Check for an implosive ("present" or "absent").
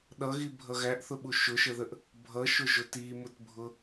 present